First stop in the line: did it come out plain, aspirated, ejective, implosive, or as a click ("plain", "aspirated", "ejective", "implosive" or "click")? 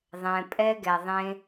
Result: ejective